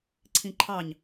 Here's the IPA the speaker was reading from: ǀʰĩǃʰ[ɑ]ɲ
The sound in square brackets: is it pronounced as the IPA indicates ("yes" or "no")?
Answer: yes